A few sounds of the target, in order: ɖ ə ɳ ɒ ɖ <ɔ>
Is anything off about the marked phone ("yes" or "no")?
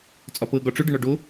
yes